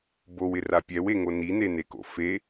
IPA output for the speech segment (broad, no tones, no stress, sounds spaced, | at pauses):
b o w ɪ r a pʲ ɛ w e ŋ o n i n e n e k o̰ f e